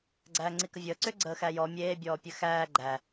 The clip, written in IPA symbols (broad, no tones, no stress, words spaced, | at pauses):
ɡ͡ǀæːŋ͡ǀikəvʲəː ǀʏ ɡ͡ǀəːxæjɔ mʲeː bʲɔːpʲɘxæː ɡ͡ǃæ